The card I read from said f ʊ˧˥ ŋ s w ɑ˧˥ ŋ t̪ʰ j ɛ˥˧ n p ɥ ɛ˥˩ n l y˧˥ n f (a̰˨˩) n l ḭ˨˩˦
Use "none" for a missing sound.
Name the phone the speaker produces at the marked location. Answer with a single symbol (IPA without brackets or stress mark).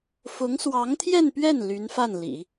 a˥˩